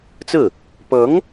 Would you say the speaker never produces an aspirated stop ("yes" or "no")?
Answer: yes